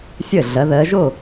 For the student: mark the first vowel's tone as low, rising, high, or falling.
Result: falling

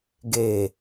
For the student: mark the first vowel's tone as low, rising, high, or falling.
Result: low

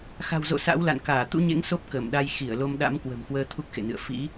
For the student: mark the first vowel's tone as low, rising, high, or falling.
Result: low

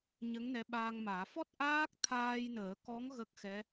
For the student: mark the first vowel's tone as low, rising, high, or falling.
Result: rising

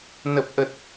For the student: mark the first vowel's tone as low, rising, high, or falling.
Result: low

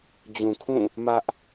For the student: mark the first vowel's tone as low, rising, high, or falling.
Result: low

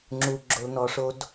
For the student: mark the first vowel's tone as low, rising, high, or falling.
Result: low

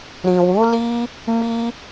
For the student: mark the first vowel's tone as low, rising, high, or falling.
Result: low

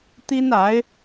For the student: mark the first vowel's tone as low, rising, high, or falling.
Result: high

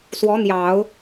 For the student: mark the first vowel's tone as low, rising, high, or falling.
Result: rising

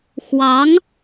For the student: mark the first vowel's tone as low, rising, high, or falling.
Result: rising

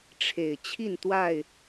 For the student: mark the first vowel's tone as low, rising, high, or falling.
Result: low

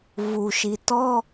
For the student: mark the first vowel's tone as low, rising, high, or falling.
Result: low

